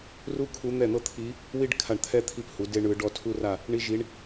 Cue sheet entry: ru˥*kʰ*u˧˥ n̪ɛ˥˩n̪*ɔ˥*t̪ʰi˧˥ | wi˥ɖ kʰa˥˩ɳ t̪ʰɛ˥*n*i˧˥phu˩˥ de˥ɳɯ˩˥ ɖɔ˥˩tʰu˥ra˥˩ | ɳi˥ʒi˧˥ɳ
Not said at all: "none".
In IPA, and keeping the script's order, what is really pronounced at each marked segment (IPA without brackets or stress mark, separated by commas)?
kʰ, ɤ˥, t̪ʰ